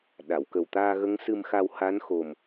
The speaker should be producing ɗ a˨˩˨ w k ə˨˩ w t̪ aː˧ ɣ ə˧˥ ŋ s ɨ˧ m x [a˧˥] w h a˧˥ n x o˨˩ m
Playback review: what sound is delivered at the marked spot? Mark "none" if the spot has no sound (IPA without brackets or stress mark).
a˧